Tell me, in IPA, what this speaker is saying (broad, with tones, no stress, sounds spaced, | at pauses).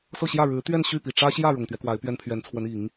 s ɤ˥˧ ɕ j ä˥˩ ɻ ɻ̩˧˥ t̪ ɥ ɛ˥˧ n ɕ y˥˩ p i˨˩ ʈ͡ʂ ä˥ ɕ j ä˥˩ ɻ ʊ˨˩ ŋ t̪ ɥ ɛ˦ k w a˧˥ ɪ̯ p ɥ ɛ˥ n pʰ ɥ ɛ˧˥ n t͡sʰ w ə˧˥ n i˨˩˦ ŋ